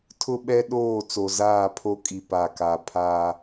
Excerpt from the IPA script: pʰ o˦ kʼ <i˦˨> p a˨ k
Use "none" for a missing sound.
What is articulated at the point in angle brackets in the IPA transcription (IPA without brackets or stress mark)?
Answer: i˨